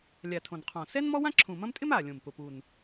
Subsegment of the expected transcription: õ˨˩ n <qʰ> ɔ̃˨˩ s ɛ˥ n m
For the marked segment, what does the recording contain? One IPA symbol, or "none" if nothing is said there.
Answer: qʰ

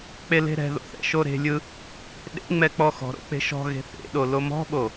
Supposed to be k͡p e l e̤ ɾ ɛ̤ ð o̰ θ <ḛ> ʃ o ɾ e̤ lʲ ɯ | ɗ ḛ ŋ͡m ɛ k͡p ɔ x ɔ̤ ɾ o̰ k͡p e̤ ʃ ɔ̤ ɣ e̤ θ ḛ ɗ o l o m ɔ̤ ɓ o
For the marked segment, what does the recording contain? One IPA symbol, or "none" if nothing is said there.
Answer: ɛ̰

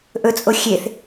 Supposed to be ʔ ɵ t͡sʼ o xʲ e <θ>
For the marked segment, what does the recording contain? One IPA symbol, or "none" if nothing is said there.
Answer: θ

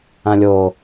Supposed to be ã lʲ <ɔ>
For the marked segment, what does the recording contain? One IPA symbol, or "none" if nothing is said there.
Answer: o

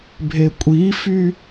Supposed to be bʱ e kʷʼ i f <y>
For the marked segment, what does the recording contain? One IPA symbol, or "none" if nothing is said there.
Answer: y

